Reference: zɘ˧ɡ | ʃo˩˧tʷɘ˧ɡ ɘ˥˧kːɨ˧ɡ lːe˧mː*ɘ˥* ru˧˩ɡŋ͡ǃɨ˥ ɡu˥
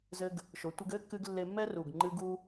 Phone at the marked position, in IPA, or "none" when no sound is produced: ɛ˥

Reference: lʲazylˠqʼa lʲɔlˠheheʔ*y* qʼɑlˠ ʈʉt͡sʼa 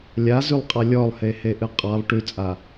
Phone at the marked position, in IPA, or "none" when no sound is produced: ɨ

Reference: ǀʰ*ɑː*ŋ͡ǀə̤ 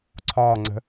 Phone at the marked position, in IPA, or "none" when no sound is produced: ɒː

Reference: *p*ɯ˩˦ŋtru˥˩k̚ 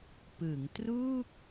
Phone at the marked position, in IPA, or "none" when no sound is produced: p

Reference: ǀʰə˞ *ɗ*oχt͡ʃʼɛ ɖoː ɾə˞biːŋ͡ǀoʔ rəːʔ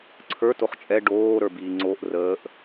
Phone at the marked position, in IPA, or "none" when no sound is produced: t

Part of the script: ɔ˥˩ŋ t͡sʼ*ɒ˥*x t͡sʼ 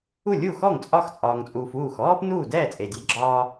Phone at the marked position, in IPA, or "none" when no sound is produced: ɒ˥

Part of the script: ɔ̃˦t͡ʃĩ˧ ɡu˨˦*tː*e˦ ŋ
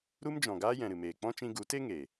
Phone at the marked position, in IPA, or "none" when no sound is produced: t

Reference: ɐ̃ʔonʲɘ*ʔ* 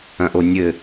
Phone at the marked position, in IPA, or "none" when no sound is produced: none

